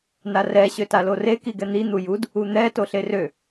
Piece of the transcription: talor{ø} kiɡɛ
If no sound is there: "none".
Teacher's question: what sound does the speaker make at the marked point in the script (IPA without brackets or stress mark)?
e